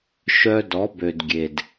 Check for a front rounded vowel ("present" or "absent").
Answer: present